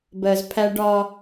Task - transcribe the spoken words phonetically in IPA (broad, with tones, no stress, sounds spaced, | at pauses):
b ɜ˨ z pʰ æ˦ ɖ ɒ˦